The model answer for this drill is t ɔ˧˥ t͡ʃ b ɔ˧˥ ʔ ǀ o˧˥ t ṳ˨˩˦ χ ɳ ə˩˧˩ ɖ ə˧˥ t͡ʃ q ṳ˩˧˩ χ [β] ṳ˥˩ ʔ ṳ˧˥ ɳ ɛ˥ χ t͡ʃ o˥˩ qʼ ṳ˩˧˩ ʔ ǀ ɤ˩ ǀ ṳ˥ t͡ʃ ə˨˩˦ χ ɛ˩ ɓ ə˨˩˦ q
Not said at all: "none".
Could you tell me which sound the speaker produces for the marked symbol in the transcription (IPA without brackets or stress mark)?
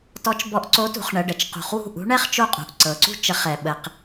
w